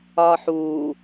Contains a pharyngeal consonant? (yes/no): yes